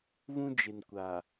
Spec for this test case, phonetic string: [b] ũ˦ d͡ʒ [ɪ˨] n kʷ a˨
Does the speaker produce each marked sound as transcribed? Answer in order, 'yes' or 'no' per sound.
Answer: no, yes

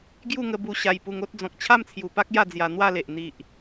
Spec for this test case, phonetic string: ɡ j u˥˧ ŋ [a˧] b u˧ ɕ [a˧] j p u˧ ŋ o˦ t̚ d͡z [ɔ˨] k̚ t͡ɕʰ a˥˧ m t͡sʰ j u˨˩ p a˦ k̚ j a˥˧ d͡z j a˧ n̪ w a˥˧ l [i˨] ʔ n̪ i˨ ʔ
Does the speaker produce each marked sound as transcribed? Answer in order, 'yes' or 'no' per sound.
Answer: no, yes, no, no

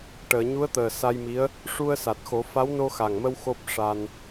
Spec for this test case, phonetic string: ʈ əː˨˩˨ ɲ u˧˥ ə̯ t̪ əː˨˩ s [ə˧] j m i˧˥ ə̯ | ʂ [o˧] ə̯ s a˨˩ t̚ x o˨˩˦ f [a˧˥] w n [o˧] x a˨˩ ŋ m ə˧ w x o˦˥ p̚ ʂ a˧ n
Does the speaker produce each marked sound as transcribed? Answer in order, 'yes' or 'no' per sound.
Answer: no, no, yes, yes

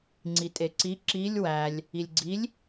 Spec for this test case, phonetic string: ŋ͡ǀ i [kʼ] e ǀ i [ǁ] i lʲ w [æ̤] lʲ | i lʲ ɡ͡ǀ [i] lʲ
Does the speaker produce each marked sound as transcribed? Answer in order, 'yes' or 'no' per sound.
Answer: no, yes, no, yes

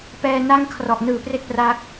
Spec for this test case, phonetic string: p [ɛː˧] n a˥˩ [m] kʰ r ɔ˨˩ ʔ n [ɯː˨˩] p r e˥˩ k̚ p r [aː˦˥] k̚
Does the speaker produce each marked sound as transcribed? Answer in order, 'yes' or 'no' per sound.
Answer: yes, no, yes, yes

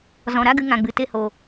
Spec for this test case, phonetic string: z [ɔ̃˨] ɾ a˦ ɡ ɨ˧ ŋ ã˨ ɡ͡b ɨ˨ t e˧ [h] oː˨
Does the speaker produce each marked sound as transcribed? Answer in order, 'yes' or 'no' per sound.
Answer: yes, yes

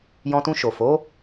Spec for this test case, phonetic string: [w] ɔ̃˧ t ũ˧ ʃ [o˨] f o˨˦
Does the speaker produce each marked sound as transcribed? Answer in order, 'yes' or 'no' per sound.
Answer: no, yes

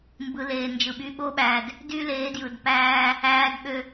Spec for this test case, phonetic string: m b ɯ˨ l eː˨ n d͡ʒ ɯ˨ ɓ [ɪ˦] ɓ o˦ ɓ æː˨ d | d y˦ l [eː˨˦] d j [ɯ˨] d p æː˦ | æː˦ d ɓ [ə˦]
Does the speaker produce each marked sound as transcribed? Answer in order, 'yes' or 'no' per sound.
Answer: no, yes, yes, no

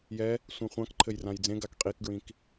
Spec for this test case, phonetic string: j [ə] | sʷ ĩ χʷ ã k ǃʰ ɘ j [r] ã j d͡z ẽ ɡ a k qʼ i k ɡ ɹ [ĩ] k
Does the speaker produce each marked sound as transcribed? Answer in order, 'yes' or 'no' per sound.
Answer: no, yes, yes

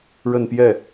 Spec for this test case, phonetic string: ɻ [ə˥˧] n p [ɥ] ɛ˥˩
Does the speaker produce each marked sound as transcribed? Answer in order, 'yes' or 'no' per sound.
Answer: yes, no

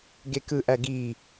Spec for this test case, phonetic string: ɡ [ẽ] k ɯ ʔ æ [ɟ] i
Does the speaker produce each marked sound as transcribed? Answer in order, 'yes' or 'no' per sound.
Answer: no, no

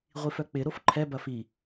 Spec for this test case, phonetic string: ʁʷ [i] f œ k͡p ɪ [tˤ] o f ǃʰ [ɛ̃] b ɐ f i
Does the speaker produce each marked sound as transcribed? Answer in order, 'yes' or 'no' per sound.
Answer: yes, no, no

